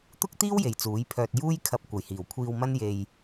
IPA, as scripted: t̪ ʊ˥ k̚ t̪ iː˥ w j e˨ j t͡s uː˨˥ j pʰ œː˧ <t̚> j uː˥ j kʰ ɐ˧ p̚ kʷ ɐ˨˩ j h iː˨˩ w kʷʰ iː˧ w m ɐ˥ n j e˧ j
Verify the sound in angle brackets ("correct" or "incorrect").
correct